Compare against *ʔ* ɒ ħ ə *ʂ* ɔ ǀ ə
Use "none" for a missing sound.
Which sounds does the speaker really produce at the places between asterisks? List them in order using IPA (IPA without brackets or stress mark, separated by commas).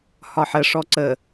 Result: h, ʂ